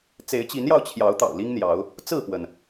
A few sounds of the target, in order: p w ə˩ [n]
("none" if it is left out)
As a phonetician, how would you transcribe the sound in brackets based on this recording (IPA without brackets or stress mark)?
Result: n